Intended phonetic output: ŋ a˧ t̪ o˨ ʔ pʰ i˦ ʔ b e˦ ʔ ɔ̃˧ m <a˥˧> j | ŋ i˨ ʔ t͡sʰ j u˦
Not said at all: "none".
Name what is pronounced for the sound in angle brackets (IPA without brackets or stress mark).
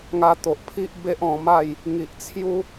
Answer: a˥˧